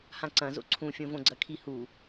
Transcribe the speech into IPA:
hãǀɐ̃ zo̰ǀʰũfʲõ võɡ͡ǀɐkʰihu

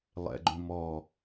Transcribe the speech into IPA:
lˠɛ̰ɡ͡ǃũmɔ

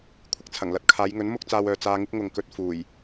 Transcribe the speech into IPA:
kʷʰɪ˨k̚t͡sʰɐ˨˩ŋlɐ˨t̚ kʰaː˨˧jŋɵ˨˥n mʊ˥k̚t͡saː˧wœː˨ t͡saː˧ŋɪ˥k̚ŋʊ˨ŋkɵ˧t̚ fuː˨˩j

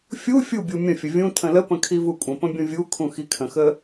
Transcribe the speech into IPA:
fʲu fʲubʲu mʲə̃fʲə vʲũ tʰə̃ləpə̃ kʰivukʷʼə̃pə̃ bʲũvʲukʰũ xikʰə̃xə

